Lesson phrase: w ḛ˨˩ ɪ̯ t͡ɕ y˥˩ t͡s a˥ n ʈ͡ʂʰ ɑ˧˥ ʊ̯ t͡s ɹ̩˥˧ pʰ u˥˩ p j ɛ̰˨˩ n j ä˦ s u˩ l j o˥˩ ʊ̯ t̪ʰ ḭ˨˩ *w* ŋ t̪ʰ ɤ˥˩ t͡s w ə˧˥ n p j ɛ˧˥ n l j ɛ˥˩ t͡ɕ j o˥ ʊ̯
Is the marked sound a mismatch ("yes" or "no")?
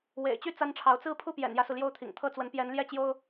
yes